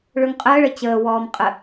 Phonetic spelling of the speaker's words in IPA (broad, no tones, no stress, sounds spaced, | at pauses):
ɭ ɵ ŋ qʼ əː ɭ ə t͡ɕ əː w ɔː m qʼ ə